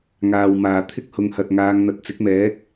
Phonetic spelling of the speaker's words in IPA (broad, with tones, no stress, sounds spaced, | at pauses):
ŋ aː˨ w m aː˨ t̪ʰ ɪ˥ k̚ h ʊ˨˧ ŋ h ɐ˨ t̚ ŋ aː˨˧ ŋ n̪ ɐ˨ t̚ t͡s ɪ˨˥ k̚ m ɛː˨˥ k̚